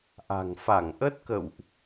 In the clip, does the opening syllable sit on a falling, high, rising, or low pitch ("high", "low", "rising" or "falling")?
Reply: low